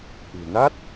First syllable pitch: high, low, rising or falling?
low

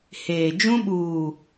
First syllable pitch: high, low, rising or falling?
low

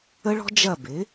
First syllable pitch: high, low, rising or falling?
high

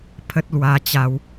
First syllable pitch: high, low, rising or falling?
high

